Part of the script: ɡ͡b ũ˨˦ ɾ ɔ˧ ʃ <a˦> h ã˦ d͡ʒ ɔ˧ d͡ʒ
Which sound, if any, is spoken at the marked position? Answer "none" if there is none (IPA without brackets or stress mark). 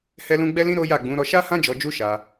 a˦